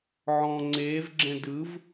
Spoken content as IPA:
ʕ ɔ̃ ŋ͡ǀ eː v ɡ͡ǁ ɛ̃ d ɯ v

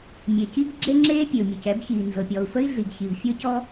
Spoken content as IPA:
mʲ e˩ c i˥ ɡ ɡ͡ǁ e˥ ŋ͡ǁ eː˥ pʲ e˩ u̯ mʲ ɤ˩ c ɛ˥ b ç iː˩ n z ɤ˩ pʲ ɔ˩ u̯ f ə˥ i̯ ɮ i˩ ɡ ç i˩ v fʲ ɤ˥ c ɔ˥

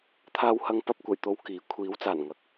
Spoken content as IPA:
t̪ʰ aː˧ w h ɐ˧ ŋ p ɐ˧ p̚ kʷ ɐ˨˩ j t̪ o˧ w k iː˨˥ kʷʰ iː˨˥ w t͡s aː˨˩ n ŋ ɐ˨ k̚

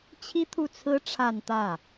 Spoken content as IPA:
t͡ɕʰ i˥ t̪ʰ u˥˩ t͡sʰ ɹ̩˥ ʈ͡ʂʰ a˥˧ n t̪ ä˥˩

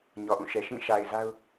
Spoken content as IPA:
ɲ ɔ˨ ʔ ũ˦˨ ʃ ɛ˨ ʃ ĩ˦˨ ʃ a˨ ɪ̯ z a˦ ʊ̯

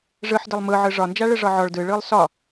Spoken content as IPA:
ʐ ɯ ħ d ɛ lˠ m ɯ ʕ ɯ ʐ ɒ n d͡ʒ a ɭ ɯ ʐ ɒ ʕ ɔ ɭ d ɯ ɭ ɯ lˠ s ɒ

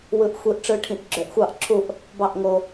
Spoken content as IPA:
w ɯ˨ ʔ xʷ i˨˦ ʔ ʈ͡ʂ ɯ˨˦ ʈʰ ĩ˨ ʔ ɡ͡ǁ ø˨˩˦ ʔ xʷ ɑ˦˨ ʔ ǁʰ u˦˨ ʔ | b ɑ˦˨ ʔ ŋ o˨

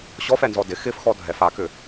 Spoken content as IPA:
ɕ ɔ f ɛ n z ɔ d ɪ x ɪ f x ɔ dʱ ɛ f a k ʏ

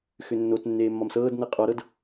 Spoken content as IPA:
x ʏ nː o t nː eː mː ɒ m s ɤː d n ɤ qʼ ɔ ɾ ɤ d

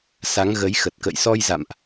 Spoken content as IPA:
s a˨˦ ŋ ɣ ə˨˦ j x ə˨˩ t̚ k ə̰˧˨ j s ɔ˧ j z a̰˧˨ m ʔ

